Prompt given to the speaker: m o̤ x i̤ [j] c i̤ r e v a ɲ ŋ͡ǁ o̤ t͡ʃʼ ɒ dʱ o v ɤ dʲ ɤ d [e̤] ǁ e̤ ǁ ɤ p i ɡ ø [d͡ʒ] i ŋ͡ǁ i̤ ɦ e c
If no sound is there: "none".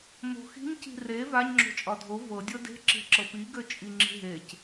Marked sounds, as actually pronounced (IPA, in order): ɲ, e̤, t͡ʃʼ

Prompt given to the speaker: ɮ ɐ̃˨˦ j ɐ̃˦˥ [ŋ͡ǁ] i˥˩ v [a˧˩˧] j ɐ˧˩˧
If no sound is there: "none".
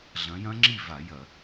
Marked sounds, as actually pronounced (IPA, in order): ŋ͡ǁ, a˧˩˧

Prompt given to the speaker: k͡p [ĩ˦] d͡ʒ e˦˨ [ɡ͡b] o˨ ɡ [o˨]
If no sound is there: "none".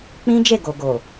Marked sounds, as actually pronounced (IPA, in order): ĩ˦, ɡ, o˨

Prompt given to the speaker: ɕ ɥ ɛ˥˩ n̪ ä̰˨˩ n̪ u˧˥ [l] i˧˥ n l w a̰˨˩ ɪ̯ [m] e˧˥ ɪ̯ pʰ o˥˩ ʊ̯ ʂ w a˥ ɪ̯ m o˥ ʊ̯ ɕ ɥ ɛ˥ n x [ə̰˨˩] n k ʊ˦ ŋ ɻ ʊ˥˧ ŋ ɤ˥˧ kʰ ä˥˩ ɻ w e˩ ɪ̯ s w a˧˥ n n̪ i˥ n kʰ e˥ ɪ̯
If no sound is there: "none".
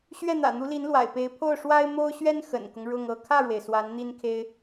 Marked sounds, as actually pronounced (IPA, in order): l, p, ə̰˨˩

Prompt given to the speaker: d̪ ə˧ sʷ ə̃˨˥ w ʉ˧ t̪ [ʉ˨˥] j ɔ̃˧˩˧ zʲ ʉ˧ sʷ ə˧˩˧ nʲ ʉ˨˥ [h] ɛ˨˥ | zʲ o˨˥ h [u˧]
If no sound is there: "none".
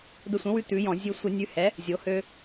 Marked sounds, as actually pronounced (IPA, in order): ʉ˨˥, h, ø˧

